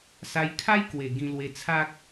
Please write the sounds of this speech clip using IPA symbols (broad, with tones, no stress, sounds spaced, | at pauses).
s a˧ j kʰ a˦ j k w e˨˩ ɡ ĩ˧ l w e˧ t͡sʰ a˦ k̚